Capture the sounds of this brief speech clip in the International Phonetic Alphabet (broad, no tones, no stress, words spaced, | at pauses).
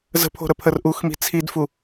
zə̤pʰo̤ɾəpʰər ʔuxmi̤ t͡sʰidfu